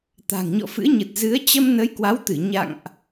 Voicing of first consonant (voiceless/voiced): voiceless